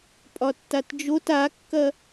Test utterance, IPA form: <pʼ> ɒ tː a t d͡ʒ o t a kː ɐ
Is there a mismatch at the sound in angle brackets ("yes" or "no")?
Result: no